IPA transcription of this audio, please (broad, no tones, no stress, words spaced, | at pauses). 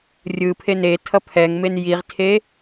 rʲɯpʰe netʰʌ pʰɛŋmen jiʁtʰe